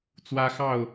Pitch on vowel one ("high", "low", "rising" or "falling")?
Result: high